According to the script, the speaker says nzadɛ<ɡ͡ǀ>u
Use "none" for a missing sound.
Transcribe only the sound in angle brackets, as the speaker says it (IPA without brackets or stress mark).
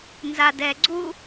ɡ͡ǀ